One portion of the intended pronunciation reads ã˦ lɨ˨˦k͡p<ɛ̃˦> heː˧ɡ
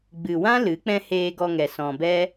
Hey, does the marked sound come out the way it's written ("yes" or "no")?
yes